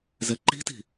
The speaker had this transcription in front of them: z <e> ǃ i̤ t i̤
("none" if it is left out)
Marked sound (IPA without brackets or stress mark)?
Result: ɛ